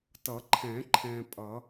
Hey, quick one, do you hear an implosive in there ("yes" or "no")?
no